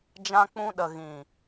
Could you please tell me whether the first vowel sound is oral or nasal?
nasal